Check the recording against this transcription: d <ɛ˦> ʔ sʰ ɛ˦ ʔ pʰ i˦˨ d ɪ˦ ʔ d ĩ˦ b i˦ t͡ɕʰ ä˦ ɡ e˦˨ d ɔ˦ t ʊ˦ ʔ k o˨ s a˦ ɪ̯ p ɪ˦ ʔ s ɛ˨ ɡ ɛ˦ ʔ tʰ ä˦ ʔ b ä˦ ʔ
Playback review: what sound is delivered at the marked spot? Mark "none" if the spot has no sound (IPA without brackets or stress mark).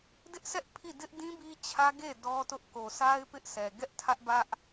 ɪ˦